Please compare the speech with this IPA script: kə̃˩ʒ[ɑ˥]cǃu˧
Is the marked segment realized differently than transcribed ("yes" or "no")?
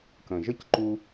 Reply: yes